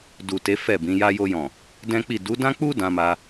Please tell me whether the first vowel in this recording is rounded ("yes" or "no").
yes